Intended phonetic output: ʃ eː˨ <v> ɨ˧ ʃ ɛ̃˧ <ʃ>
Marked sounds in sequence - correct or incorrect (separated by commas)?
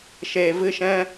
correct, incorrect